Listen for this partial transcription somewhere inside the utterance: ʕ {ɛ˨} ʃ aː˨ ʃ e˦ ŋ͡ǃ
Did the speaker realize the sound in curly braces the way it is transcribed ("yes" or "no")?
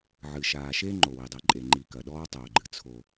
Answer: no